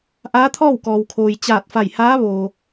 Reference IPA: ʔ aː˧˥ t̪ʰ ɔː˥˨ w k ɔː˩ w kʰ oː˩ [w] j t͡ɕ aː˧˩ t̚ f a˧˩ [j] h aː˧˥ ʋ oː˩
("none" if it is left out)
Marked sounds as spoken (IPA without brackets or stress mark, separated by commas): none, j